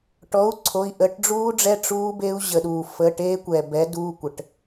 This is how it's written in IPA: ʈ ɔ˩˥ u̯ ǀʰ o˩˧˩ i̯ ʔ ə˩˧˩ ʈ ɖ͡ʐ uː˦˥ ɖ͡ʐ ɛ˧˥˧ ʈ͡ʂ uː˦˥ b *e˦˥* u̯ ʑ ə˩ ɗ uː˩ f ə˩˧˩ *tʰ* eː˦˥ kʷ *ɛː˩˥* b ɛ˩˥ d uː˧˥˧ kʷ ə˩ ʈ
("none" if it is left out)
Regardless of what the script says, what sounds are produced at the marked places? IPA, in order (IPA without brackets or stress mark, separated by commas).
e˦˥, ʈ, ɛː˩